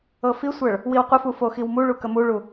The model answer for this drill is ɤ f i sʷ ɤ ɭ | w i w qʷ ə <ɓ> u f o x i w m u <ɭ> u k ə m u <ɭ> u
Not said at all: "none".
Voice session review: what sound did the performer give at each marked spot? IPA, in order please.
f, ɭ, ɭ

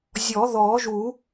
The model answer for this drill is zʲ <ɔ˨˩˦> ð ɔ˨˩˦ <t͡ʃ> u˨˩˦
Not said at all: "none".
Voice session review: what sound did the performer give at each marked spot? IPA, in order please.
ɔ˨˩˦, ʒ

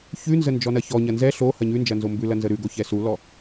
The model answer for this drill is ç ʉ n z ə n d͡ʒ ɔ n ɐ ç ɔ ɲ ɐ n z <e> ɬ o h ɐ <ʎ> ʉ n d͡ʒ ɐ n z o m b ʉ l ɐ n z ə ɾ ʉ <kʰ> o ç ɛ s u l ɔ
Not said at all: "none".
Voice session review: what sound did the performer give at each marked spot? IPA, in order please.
ɛ, ɲ, ɡ

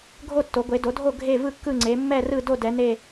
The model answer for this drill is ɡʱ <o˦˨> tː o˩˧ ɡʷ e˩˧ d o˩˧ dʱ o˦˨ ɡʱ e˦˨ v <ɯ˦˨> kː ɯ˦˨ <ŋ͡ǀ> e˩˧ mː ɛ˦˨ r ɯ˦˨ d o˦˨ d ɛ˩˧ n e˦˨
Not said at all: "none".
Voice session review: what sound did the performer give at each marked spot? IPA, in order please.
o˦˨, ɯ˦˨, ŋ͡ǀ

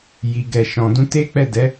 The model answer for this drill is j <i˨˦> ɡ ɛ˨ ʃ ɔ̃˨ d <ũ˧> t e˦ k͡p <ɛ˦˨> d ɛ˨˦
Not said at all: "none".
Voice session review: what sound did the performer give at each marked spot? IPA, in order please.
i˨, ũ˧, ɛ˦˨

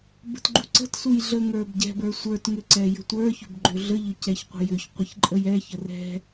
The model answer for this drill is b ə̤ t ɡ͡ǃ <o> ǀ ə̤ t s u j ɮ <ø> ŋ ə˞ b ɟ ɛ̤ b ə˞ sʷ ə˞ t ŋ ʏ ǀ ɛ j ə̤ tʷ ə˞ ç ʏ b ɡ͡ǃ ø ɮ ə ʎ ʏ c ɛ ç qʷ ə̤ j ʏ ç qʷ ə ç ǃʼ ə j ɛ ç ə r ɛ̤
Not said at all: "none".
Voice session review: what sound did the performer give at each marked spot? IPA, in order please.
u, ə

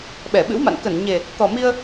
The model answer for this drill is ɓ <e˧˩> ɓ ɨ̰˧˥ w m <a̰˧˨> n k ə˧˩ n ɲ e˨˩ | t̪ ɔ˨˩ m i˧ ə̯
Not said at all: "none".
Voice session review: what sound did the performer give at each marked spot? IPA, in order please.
ɛ˧˩, a̰˧˨

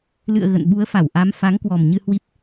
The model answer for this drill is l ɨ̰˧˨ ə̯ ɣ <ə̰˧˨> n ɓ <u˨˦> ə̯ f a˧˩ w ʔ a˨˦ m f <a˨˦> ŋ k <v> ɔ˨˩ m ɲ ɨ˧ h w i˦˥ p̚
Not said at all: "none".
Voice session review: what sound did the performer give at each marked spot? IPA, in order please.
ə̰˧˨, u˨˦, a˨˦, w

